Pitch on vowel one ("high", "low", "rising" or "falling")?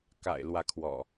low